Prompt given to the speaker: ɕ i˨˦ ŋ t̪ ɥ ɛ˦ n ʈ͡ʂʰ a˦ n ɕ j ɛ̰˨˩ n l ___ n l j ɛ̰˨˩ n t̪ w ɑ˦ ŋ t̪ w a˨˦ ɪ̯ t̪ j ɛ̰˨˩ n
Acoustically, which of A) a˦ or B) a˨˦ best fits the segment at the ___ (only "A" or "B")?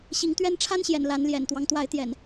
B